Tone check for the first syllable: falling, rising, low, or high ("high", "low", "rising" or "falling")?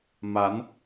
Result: rising